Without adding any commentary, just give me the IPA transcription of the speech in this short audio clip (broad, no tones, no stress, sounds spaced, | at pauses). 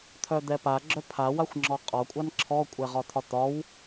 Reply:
t̪ʰ œ d̪ ɛ p a ɡ͡ǁ œ pʰ a w a xʷ ŋ͡ǁ ɔ qʼ ɒ kʷʼ a n ǁʰ ɔ kʷʼ ɛ ʁ ɒ t̪ʰ ɒ t̪ ɒ w